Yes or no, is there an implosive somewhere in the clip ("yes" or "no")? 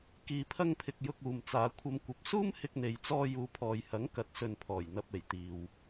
no